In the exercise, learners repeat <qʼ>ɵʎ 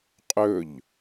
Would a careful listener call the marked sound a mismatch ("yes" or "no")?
no